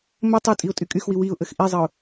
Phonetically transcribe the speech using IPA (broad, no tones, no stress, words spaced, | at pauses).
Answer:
mə tˤy tʼiʊ̯tʼykʼyxwi wiʊ̯ ʔəxʔizˤəʊ̯